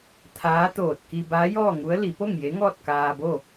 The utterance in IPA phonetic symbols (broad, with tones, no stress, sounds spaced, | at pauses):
t̪ʰ aː˧˥ t̪ oː˧˩ t̚ k i˧ b aː˧˥ j ɔː˥˨ ŋ u˧˥ ə̯ l i˩˧ p o˥˨ ŋ j e˧˥ ŋ ɔː˥˨ t̚ k aː˧ b o˥˨